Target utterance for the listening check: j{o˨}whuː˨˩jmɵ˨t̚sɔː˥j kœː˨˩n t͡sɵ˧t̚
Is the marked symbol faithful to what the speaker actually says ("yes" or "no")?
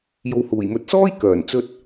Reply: yes